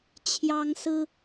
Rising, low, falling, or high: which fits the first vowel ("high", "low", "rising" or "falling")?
high